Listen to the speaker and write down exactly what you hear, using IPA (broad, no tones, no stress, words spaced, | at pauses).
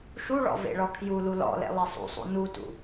ʃuɭɔ̰ vḛɭɔkʰjulu lɔ̰lḛ lˠesˤṵsˤṵ nutṵ